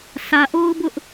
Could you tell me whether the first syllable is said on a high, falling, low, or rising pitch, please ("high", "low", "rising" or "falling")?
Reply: low